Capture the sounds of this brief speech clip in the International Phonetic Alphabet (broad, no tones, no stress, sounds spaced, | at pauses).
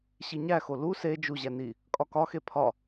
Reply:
ɕ i ɲ æ x o l u s e d͡ʒ u ʑ æ n i | kʼ ɒ k ɒ x e pʰ ɒ